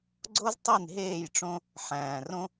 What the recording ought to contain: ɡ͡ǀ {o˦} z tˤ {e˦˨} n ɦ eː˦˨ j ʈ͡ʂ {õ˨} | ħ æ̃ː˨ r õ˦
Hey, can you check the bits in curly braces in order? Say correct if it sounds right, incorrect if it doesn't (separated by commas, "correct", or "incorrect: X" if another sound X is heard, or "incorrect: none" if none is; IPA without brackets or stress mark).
correct, incorrect: i˦˨, incorrect: õ˦